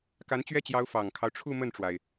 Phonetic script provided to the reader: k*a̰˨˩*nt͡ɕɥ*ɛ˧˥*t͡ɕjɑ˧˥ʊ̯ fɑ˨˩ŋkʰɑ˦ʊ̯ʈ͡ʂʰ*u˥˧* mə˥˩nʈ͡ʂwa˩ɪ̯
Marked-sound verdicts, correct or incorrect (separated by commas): incorrect, incorrect, correct